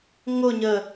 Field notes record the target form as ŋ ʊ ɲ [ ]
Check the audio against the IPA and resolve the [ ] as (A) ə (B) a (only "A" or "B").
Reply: A